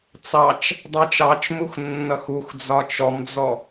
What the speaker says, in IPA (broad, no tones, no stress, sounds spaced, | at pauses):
t͡s ɑ t͡ʃ | dˤ æ t͡ʃ ɑ t͡ʃ m u x nː ʌ x u x d͡z ɒ t͡ʃ ɔ m d͡z ɔ